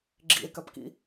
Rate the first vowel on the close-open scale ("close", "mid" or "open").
close